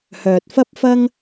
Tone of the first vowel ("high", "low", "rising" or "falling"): low